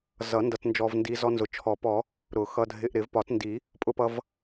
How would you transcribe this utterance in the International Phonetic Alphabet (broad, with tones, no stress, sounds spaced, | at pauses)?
z ʌ˨˩˦ n d ʌ˧ t n d͡ʒ ɔ˧ v n d i˧ z ɔ˧ n z ʊ˨˩˦ t͡ʃʰ ɔ˨˩˦ p ɔ˨˩˦ | ɾ ʊ˨˩˦ x ʌ˧ dʱ ɪ˧ ʔ ɾ ɪ˨˩˦ v p ɒ˨˩˦ t n d i˨˩˦ | pʼ ʊ˧ p ʌ˧ v